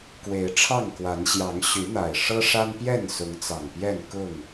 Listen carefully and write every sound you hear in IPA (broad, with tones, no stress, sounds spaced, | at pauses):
k w e˨˦ ɪ̯ ʈ͡ʂʰ ɑ˥˨ ŋ k w a˨˦ n ɕ j ɑ˨˦ ŋ ɕ y˨˦ n̪ a˨˩ ɪ̯ ʂ ɤ˦ ʂ a˦ n p j ɛ˥˨ n s ʊ˨˦ ŋ t͡s ɑ˨˩ ŋ p j ɛ˥˨ n k ʊ˥˨ ŋ